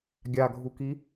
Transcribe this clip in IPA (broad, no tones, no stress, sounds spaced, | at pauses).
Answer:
ɡʲ a ɡʱ u k i